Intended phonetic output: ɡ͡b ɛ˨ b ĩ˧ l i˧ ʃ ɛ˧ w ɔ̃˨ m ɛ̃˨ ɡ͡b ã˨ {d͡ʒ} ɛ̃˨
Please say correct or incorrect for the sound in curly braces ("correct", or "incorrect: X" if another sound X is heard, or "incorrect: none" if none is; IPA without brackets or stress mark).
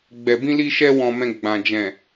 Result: correct